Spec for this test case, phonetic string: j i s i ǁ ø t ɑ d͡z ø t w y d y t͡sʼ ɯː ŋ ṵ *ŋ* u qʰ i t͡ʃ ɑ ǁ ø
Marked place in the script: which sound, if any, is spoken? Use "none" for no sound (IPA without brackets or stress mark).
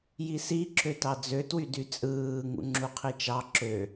ŋ͡ǁ